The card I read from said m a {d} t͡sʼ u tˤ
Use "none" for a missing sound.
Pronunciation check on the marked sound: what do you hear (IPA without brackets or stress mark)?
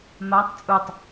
tˤ